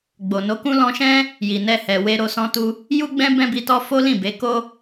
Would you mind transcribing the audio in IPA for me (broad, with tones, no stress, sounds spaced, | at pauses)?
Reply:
ɡ͡b o˨ n o˨˦ k ũ˦ l ɔ̃˧ ʃ ɛ̃˦ | j i˨ n ɛ˧ h ɛ˨ w e˧ ɾ o˧ s ɔ̃˧ t u˧ | j u˦ ɡ͡b ɛ̃˦ b ɛ̃˦ b i˧ t ɔ˦ f o˦ l ĩ˦˨ b e˨˦ k o˦